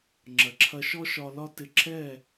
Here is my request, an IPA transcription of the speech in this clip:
ŋ͡ǁ ɐ˩ ǁʰ ɐ˧ ʃ ɔ˥ ʃ ɒ˧ l ɒ˥ t ɪ˧ ǁʰ ɛ˥˩

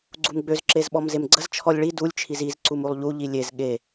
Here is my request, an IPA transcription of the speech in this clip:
ɡ͡ǀ u m ɡ͡b ø z ǁ e z ɓ ɔ m z e m ɡ͡ǀ ə z t͡ʃʰ ɔ lʲ ɭ i d u lʲ t͡ʃʰ i z i z ǀ u m u lˠ ʎ u ʎ i lʲ e z ɠ e

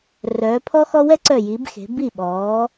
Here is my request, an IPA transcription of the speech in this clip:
r œː˩˧ pʰ ɔ˦ x ɔ˦ w ɛ˦ ǀ œ˧˩ j i˩˧ b x e̤˩˧ b i˧˩ ɓ ɔː˩˧

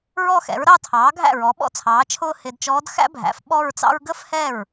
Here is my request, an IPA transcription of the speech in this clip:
ɹ ɔ˥˧ x ɛ̰˩˥ ɹ ɾ ɑ˥˧ tʰ ɑː˩˥ ɡʱ æ̰˥˩ ɹ ɔ˩˥ ɓ ɔ̰˥˧ t͡sʰ ɑː˩˥ t͡ʃʰ ʊː˥˧ h ɪː˨ d t͡ʃ ɔː˧˥ d x æ̰˥ bʱ æ̰˩˥ f ɓ ɔ˥˧ ɹ t͡s ɑ̰˥ ɹ ɡ ə˥ f h ɛ˥˩ ɹ

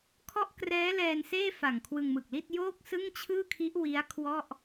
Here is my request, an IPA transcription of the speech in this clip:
kʰ ɔ˥˩ ʔ k r ɛː˦˥ l ɛː˧ n s eː˥˩ f a˨˩ ŋ kʰ w ɯ˧ ŋ m ɯ˨˩ k̚ l i˥˩ t̚ j oː˥˩ k̚ s ɯ˥˩ ŋ t͡ɕʰ ɯː˥˩ kʰ i˦˥ ʔ w i˦˥ a̯ kʰ w ɔ˥˩ ʔ

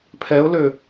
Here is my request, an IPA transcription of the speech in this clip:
pʰ ɛ ʊ̯ l ø

